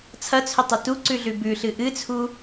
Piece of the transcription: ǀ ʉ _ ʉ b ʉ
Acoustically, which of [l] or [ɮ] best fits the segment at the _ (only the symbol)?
ɮ